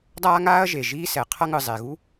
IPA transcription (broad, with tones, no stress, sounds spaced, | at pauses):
dˤ aː˦ ŋ aː˦ ɐ̯ ʒ e˩ ʒ iː˦ s ɛ˩ qʰ ʌ˥ ŋ ɯ˨ zˤ e˨ ɣ u˥